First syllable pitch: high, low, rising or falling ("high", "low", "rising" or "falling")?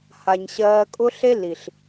low